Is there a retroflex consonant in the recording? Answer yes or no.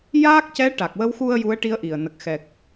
yes